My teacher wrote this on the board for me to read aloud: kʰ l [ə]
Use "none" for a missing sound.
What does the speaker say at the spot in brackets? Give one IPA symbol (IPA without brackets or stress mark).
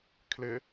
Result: ɪ